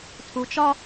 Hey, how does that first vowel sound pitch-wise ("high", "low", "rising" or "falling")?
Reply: low